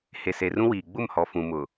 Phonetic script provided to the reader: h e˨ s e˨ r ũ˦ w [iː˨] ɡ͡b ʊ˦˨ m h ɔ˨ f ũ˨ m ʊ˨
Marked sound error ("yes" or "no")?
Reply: no